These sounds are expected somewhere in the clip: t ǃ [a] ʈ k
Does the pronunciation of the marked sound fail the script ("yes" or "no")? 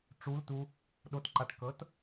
no